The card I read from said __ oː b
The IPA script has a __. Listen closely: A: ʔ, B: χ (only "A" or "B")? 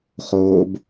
B